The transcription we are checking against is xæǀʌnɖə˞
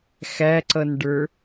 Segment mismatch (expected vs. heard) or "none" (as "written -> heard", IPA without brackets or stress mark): none